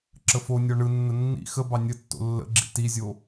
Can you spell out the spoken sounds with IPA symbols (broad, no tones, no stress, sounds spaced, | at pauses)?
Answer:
ǁ ə f o nʲ ɔ ɳ ɯ nː ə nː ḭ x ə b ɑ nʲ ə tː o̰ lː ə̰ ɡ͡ǁ ḭ t i zʲ o